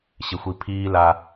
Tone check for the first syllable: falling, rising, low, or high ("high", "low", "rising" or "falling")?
low